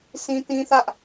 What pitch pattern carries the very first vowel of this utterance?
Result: high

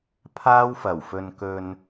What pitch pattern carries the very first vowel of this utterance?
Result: high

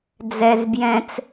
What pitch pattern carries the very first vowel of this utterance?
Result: low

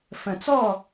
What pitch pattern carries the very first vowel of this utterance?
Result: low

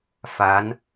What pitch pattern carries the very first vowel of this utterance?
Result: rising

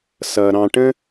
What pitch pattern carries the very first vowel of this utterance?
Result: low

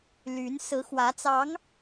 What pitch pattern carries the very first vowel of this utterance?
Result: rising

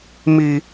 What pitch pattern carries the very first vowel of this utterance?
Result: high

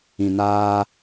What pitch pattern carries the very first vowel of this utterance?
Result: low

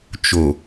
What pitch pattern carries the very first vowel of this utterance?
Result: low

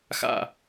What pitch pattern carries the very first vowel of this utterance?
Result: falling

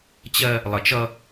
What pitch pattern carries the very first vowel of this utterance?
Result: high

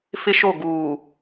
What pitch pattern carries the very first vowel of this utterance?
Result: high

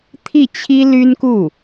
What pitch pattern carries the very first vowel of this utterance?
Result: falling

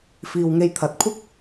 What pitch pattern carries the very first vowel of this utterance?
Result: low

